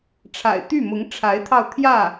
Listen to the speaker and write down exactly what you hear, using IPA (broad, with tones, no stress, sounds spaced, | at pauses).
ʈ͡ʂʰ a̰˨˩ ɪ̯ t̪ y˥˩ m ʊ˧˥ ŋ ʈ͡ʂʰ a˧˥ ɪ̯ t̪ʰ ɑ˧ ʊ̯ t̪ʰ j ä˥˩